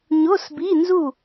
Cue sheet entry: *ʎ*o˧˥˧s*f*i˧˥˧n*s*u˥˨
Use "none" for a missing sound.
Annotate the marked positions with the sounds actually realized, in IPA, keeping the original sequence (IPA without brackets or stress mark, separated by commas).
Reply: ɲ, b, z